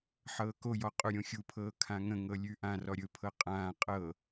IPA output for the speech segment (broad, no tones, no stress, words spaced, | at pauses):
ħɤːkojɔ qʼuɾʲõxʲupʰɤː kʰãŋə̃ŋɤ lʲʉʔãrɔ ɾʲɵpʰɤ qʼãː qʼɤ